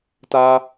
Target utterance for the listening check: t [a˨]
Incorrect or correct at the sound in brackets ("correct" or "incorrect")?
incorrect